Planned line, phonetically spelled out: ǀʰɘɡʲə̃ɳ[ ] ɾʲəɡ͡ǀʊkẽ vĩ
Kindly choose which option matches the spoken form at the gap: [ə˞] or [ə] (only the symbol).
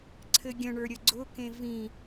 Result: ə˞